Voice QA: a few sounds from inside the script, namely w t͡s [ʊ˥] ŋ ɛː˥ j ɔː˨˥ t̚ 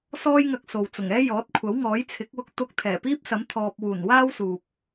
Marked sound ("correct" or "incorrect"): incorrect